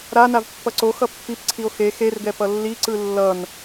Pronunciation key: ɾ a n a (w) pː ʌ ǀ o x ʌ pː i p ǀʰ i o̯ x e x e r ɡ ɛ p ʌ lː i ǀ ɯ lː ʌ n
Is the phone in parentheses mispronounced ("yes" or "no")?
yes